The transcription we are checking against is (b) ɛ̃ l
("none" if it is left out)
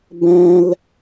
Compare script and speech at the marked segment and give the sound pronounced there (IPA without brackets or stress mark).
b